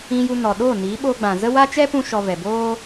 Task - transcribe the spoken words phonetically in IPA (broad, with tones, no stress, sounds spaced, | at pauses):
ĩ˧ j u˧ n ɔ˨ ɗ o˦˨ n iː˨˦ ɓ o˧ ɡ͡b ã˨ z ə˦ w a˦ t͡ʃ ɛ˦ p ũ˧ ʃ ɔ˨ v ɛ˨ b oː˦